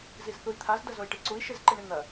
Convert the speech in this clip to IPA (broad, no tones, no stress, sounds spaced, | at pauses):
z i z θ u i̯ t̪ʰ a z d ɐ z o i̯ ʈ i ǀ u i̯ ʃ e z ǃ i ɳ i n̪ ɐ